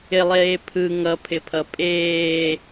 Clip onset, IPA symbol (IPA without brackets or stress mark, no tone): ɪ